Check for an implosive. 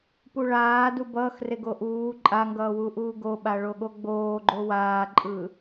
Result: present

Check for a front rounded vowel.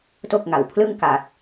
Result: absent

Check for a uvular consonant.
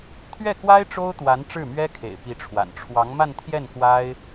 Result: absent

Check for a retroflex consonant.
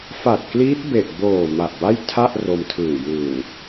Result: absent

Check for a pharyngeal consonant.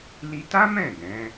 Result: absent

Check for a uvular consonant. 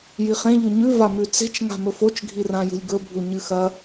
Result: present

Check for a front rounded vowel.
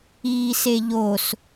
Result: absent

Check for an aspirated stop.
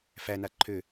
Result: present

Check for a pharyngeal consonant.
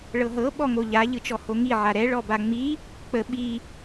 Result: present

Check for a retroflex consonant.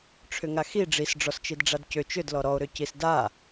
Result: present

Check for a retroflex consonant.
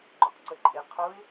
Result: absent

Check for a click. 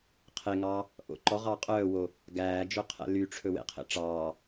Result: present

